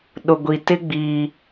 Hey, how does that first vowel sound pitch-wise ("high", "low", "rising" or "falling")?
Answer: low